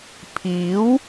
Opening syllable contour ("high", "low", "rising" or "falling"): rising